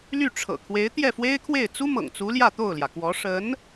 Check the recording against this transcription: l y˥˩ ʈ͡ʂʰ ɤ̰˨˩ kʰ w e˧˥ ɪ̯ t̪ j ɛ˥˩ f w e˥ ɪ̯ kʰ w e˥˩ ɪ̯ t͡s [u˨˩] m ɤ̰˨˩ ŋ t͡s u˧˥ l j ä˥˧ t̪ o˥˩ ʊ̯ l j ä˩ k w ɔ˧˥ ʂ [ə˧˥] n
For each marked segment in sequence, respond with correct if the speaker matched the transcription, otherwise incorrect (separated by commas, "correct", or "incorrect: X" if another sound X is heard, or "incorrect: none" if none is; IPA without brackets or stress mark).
incorrect: u˥, correct